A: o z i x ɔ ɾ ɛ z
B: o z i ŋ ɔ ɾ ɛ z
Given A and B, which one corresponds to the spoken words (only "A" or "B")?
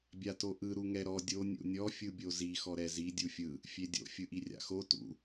A